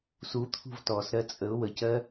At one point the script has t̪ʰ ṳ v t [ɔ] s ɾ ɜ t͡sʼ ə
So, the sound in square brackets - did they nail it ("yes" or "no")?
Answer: yes